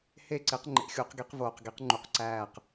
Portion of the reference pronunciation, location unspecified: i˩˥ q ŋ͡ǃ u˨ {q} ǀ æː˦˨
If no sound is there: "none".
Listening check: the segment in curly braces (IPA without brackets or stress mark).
q